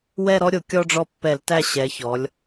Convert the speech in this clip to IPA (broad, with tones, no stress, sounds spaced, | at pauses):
w ɛ˦˨ ɾ ɔ˦ ɾʲ o˧˩˧ kʲ ɔ˦ ɖ͡ʐ ɔ˦˨ pː ɛ˧˩˧ l t æ˦˨ ɕ ɛ˩˧ ç ɔ˩˧ lʲ